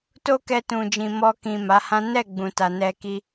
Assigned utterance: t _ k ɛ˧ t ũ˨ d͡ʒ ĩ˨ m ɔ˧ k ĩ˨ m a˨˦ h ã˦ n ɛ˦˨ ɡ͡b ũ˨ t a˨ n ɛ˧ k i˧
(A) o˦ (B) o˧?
A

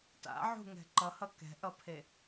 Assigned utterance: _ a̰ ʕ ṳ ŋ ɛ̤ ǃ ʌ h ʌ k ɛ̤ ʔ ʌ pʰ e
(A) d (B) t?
B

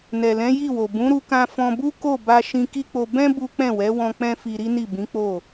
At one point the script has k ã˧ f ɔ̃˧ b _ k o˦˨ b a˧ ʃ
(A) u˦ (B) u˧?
A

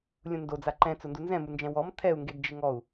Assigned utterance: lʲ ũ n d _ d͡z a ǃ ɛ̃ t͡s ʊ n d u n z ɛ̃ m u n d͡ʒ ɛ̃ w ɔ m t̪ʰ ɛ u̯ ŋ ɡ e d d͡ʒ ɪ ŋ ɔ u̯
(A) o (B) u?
A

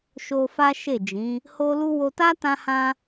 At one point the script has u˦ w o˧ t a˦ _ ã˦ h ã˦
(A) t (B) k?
A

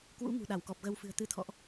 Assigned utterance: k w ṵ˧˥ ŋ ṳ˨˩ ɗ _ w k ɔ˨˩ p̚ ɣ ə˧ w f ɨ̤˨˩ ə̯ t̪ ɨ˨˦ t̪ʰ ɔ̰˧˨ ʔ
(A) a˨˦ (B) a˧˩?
B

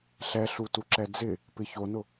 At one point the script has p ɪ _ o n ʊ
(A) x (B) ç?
B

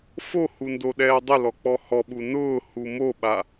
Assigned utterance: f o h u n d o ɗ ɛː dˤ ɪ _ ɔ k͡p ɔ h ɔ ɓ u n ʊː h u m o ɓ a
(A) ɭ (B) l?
B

